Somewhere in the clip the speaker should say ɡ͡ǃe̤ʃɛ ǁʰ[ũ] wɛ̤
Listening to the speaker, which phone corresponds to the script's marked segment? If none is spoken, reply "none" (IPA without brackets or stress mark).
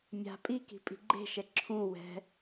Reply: ũ